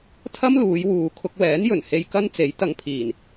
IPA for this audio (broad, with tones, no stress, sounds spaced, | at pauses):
t̪ʰ ɐ˥ m l uː˨˧ j w uː˨ kʰ ʊ˧ k̚ w ɛː˨˥ n j ɵ˨˩ n h e˧ j k ɐ˥ n t͡s e˨˥ j t̪ ɐ˧ ŋ pʰ iː˨˩ n